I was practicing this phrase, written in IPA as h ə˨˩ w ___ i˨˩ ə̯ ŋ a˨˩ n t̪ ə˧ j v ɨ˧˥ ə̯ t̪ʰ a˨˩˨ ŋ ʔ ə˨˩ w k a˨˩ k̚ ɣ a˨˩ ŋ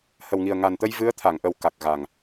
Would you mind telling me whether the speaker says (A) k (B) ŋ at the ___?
B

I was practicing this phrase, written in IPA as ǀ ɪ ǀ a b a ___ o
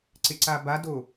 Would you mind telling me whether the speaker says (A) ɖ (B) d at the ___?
B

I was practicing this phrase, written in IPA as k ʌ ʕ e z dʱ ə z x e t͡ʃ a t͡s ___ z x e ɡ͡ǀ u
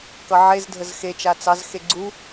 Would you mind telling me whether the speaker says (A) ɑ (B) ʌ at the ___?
A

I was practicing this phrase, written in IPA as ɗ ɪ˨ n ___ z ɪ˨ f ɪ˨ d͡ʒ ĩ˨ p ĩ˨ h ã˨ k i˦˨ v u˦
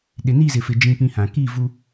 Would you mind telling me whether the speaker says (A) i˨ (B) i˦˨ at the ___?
B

